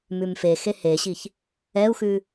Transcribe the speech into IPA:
mʉmfexe heɕiç | ɛu̯xʉ

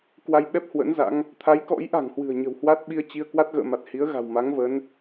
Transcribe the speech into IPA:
kwa˧jɓɛ˦˥p̚ hwə̰˧˥nza̰˧˥ŋ | t̪ʰa˨˦jkɔ̰˧˥jʔa̤˨˩ŋhwɨ̤˨˩ə̯ ɲə̤˨˩whwa˦˥t̚ɓi˧ə̯ t͡ɕi˧ə̯ kwa˦˥t̚ɣə̰ː˧˨ma˨˩t̚ hi˨˦ə̯ ɣa̤˨˩w ma˨˦ŋvə˨˦n

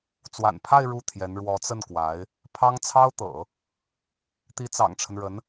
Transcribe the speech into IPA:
t͡swa̰˨˩npʰa˥˧ɪ̯ ɻu˥˩t̪ʰjɛ˧˥n ɻwɔ˧˥t͡sə˥˩nkwa˧˥ɪ̯ | pʰɑ˥ŋ t͡sʰɑ˥ʊ̯t̪ɤ̰˨˩˦ | t̪i˧˥t͡sɑ̰˨˩ŋʈ͡ʂʰə˦nɻə˧˥n

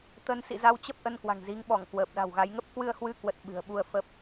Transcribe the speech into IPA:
t̪ə˧n sḭ˧˨za˧wt͡ɕə˦˥p̚ ʔə˧nkwa̤˨˩ŋzi˨˦ŋɓɔ˧˩ŋ kwəː˨˩p̚ɗa̤˨˩wɣa˨˦jŋə˦˥p̚ kwɨ˧ə̯hwɨ˧kwə˨˩t̚ ɓɨ̤˨˩ə̯ɓu˧ə̯fə˦˥p̚

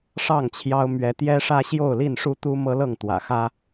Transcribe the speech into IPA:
ʂɑ˥˨ŋt͡ɕʰjɑ˦ʊ̯ mɥɛ˨˦ t̪jɛ˦ʂä˦ ɕjo˥˨ʊ̯li˥˨nʂu˦t̪u˦ mɤ˦lɤ˥˨ŋt̪wä̰˨˩xä˦

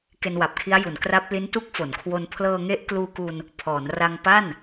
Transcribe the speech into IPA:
ke˧nwa˨˩p̚kʰi˦˥a̯ju˩˦n kra˦˥p̚li˦˥n tu˦˥k̚fo˩˦nkʰwo˧n pʰlɤː˧ŋe˦˥ʔ kluː˧ku˧n | pʰɔː˩˦nra˧ŋpa˥˩n

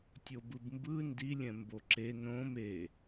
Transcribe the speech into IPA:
tʲobɯbmbɯ ndi lʲɛ̃mboǁe nõm e

